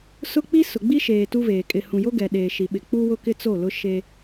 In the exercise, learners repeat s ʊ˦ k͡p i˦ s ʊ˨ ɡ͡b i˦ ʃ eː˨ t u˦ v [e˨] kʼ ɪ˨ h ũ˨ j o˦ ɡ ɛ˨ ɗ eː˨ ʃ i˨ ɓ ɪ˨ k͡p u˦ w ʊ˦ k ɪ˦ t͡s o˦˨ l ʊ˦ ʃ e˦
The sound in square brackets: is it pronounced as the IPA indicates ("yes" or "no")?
no